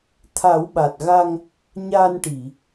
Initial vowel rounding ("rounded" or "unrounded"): unrounded